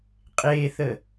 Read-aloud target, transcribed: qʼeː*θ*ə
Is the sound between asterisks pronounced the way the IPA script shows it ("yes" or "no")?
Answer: yes